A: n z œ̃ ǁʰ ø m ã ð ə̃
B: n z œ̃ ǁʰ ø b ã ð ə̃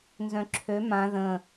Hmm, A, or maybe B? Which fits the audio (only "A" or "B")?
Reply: A